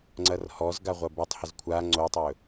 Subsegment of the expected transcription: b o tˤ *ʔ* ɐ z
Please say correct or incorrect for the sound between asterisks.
incorrect